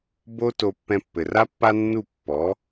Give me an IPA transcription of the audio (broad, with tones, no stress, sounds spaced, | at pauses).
b o˥ t o˧ pː ɛ̃˧ pː ɘ˩ r a˥ pː a˥ nː u˥˩ pː ɔ˩˥